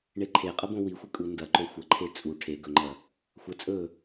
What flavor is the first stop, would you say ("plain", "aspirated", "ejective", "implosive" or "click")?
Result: click